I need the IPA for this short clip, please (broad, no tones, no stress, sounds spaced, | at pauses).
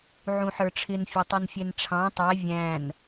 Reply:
ʕ ũ ħ ə˞ ʈ͡ʂʰ ɪ n fʲ ɔ tˤ u n fʲ ɛ n ʈ͡ʂʰ ɑ̃ tˤ ɛ vʲ æ̃ n